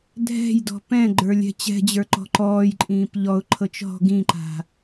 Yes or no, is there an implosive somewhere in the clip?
no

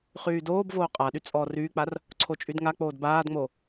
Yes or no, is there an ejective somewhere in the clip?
yes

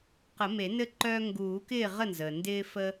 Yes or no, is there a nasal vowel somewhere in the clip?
no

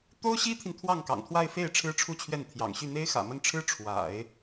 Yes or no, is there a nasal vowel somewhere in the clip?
no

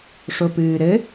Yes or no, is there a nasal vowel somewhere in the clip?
no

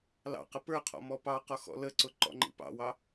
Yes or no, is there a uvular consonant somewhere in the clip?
yes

